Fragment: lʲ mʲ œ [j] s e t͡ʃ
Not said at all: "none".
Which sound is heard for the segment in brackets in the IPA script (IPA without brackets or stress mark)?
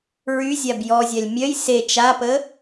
j